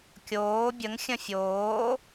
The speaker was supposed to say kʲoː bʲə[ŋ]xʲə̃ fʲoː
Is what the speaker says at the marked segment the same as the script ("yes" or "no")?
yes